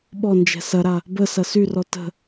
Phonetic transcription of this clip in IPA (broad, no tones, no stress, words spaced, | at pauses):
ɓɔnd͡ʒɛ̤ sɐɾa | bə sɐsyrɔ tə̤